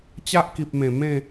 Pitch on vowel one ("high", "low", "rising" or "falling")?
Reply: high